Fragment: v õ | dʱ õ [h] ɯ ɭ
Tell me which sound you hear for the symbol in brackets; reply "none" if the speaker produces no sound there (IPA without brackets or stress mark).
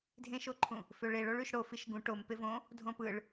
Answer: p